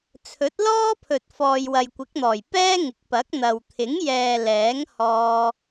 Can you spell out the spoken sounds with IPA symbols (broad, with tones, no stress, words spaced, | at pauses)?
t͡sʰɵ˨˥t̚lɔː˥pʰɵ˨t̚ fɔː˨jwɐ˨jkʷɪ˨˥k̚n̪ɔː˨˩j pɛː˥ŋɪ˨˥k̚ pɐ˨˥k̚n̪ɐ˨w t̪ʰɪ˨˥ŋjɛː˨ lɛː˨˥ŋhɔː˧